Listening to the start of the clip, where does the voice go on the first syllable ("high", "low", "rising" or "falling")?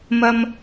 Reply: high